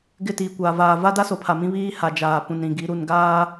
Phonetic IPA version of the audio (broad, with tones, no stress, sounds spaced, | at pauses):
ɡ ɪ˦˨ t iː˨ kʷ aː˨ v aː˨ v a˦ d a˦ s o˨˦ pʰ a˨ m ĩ˦ β iː˦ h a˨ d͡ʒ aː˨ p ũ˨ n ɾ ĩ˨ ɡ i˨˦ ɾ u˨ n ɡ aː˦